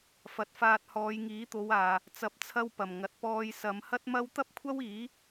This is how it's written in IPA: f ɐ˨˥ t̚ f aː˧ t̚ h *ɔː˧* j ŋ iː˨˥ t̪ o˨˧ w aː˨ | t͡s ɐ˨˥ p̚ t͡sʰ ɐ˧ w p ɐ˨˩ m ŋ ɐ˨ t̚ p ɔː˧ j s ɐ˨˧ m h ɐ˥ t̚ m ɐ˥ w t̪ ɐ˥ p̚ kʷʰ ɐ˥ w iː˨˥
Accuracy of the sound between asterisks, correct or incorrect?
incorrect